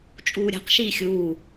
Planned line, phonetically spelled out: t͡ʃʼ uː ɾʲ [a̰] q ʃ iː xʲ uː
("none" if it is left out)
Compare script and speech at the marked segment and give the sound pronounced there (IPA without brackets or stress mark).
a̤